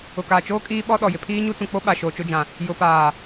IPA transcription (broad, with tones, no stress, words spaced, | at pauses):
ʊ˨kaː˨t͡ʃoː˦ kʼiː˦ɓɔ˦ɗɔ˨ jɪ˨pʰiː˦ɲu˦t͡sũ˨ k͡po˦ɓa˨ ʃoː˨t͡ʃʊ˦d͡ʒã˨ | jʊ˨paː˨